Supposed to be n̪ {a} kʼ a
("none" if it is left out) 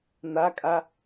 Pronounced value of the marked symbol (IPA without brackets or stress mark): a